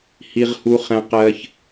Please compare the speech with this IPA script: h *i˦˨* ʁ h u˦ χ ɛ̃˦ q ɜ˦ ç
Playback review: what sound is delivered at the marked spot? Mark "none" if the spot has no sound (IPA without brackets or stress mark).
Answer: i˦